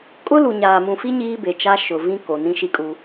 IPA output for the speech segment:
kʼʊ˦lu˨ ɲaː˨mũ˨fi˦ ɲiː˦be˨t͡ʃa˦ ʃʊ˨vĩ˦ ko˨ nĩ˦ʃi˦kʼu˦

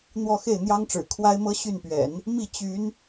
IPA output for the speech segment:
n̪wɔ˥˧xe˥˩ɪ̯n̪jɑ˥ŋʈ͡ʂɻ̩˨˩ kʰwa˥ɪ̯mɤ˥ ɕy˥˩npɥɛ̰˨˩˦n | mi˥˩ t͡ɕy˧˥n

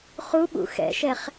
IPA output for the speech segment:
χuɓṵ xɛ̰ʃɛχ

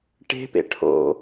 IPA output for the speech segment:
ʈe̤pḛ ʈʰo̰

